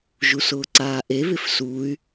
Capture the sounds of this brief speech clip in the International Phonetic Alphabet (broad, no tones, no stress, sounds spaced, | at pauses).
ʒ u s ʊː ǀ aː ʔ e β ɪ f s uː y̯